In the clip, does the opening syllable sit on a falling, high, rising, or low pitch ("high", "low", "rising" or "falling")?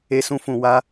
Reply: high